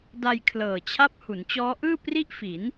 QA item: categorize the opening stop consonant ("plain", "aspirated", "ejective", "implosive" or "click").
plain